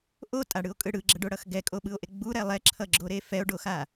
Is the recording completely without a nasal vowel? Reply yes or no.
yes